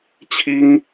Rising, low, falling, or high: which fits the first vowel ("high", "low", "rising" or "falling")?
high